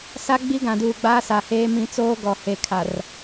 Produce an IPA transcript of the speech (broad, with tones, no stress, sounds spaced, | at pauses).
s a˦ ɡ͡b i˦ ɡ ã˨ d uː˨ ɡ͡b aː˦ s a˨ h eː˦ m ĩ˦ t͡s oː˦ ɡ ɔ˨ h e˨ kʰ a˨ r